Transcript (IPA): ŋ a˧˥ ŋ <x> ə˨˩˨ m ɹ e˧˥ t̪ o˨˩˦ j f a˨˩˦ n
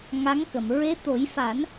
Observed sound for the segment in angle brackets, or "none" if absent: k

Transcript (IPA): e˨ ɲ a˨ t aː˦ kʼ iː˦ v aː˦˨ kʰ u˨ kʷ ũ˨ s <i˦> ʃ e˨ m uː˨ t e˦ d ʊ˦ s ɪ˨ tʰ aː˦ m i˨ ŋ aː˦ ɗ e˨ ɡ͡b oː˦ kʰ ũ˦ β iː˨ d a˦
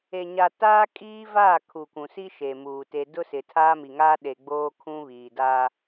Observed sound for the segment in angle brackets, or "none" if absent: i˦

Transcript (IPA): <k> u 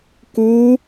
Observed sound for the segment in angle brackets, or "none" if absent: k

